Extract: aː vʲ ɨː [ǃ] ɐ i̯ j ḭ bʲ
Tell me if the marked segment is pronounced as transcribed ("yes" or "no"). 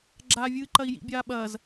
yes